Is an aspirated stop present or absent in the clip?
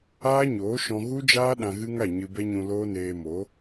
absent